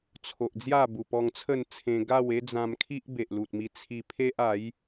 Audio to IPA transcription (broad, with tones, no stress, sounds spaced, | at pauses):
t͡sʰ o˨ ʔ d͡z j a˥˧ b u˨˩ p ɔ˧ ŋ t͡sʰ ə˥˧ n t͡sʰ ẽ˧ ɡ a˥˧ w e˦ d͡z ã˧ m kʰ i˦ ʔ b e˨ ʔ l u˨ t̚ m i˧ t͡sʰ i˧ pʰ e˦ ʔ a˨˦ j